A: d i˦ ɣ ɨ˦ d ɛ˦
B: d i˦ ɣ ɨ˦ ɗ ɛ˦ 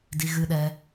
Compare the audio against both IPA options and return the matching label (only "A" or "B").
B